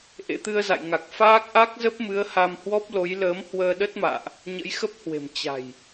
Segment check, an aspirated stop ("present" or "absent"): absent